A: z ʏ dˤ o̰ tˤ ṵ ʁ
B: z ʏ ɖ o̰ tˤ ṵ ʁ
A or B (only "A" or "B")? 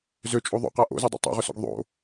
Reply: A